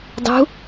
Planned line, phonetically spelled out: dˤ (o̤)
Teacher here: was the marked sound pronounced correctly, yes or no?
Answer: no